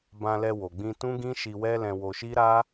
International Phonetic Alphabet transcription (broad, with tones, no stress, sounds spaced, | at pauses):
b ã˧ l ɛ˧ w o˨ ɡ͡b ĩ˧ t ũ˦ ɡ ĩ˦ ʃ i˧ w ɛ˦ l ɛ̃˧ w o˧ ʃ i˦ ɾ a˦